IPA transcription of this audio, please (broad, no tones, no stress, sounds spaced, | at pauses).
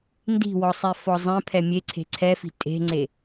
n d i̤ w ɔ sˤ e f ɔ zˤ ɛ̃ pʰ ɛ mʲ e ǀʰ e̤ ǀʰ ɛ f i̤ tʼ e̤ ŋ͡ǀ e